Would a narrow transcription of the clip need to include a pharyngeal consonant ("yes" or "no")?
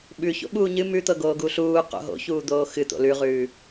no